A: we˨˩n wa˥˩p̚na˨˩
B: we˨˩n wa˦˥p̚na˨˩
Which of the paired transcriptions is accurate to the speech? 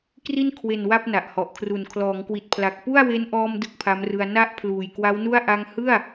A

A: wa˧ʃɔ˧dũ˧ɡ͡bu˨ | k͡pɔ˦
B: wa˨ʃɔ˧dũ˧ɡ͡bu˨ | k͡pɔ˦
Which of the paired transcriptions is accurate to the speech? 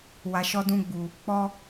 B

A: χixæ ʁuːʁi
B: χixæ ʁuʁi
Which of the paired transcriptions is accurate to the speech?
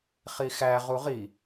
B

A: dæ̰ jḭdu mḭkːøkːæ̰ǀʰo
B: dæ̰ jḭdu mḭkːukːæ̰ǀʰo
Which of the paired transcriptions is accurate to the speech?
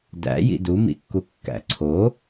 B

